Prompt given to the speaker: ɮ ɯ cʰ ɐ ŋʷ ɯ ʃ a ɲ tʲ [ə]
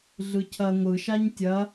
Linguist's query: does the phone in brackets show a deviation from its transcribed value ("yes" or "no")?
yes